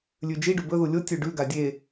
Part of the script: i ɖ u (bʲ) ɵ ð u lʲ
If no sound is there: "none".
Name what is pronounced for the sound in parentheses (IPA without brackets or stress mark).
b